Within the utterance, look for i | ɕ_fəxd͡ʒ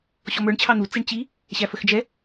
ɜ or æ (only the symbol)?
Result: æ